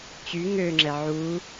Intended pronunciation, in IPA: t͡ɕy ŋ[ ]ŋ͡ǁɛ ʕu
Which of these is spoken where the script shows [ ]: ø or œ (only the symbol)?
ø